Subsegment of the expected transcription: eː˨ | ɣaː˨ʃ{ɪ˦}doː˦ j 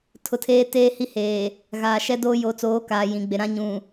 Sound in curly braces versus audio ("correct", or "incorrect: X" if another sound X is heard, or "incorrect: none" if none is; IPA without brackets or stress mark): incorrect: ɛ˦